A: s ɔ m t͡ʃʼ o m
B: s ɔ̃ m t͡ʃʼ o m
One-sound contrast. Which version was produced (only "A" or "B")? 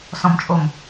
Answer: B